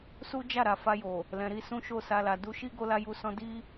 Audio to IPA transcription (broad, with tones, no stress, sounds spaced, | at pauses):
s u˦ d͡ʒ a˦˨ ɾ a˨ f a˧ j o˨ | l ɛ̃˨ ɾ i˧ s ũ˦ ʃ o˦˨ s a˧ l a˨ d u˧ ʃ i˦ ɡ o˧ l a˧ j u˧ s ɔ̃˦ d i˦